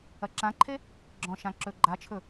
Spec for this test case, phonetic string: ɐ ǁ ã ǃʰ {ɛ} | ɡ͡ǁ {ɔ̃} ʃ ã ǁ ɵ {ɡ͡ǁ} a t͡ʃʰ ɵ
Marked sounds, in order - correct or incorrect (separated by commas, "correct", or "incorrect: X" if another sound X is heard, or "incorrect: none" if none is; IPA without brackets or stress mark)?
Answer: incorrect: e, correct, incorrect: ɡ͡ǃ